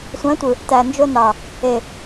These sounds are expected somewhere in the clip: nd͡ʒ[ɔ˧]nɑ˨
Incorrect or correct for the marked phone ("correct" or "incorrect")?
incorrect